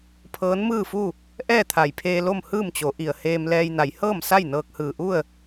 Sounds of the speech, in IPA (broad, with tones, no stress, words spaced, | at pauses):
pʰɤː˧˥nmɯː˥˨fu˥˨ | ʔɛː˥˨t̪ʰa˧˩jpʰeː˧ lo˥˨mhɯː˥˨mt͡ɕo˩˧ʔi˩ə̯ heː˧mlɛː˧jna˩˧j hɤː˥˨msa˥˨j nɤː˧k̚hɯː˧˩ʔu˥˨ə̯